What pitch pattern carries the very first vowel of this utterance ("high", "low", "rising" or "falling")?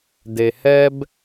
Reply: low